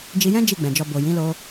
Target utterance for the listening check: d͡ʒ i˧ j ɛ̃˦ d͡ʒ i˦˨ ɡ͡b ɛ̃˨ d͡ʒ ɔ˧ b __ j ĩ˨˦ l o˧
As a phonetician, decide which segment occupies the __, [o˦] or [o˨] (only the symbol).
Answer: o˨